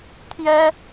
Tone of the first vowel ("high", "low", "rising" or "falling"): high